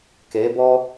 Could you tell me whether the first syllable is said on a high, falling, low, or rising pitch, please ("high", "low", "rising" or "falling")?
rising